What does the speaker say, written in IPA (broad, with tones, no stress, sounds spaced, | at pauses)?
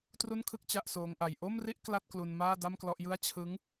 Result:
t r u˥˩ n kʰ ɯ˥˩ k̚ t͡ɕ a˥˩ ʔ s oː˦˥ ŋ ʔ a˧ j ʔ o˥˩ m r i˥˩ ʔ k l a˥˩ t̚ k l u˧ n m aː˥˩ d a˥˩ m k l ɔ˥˩ ʔ j ɯ˥˩ a̯ t͡ɕʰ ɯ˦˥ ŋ